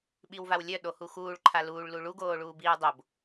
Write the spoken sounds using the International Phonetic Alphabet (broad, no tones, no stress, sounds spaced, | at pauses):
ɓ i w v a w lʲ œ ɗ o h u x uː ɭ ǃʰ a l uː ɭ l u ɭ u ɡ oː ɭ uː b iː u̯ dˤ o b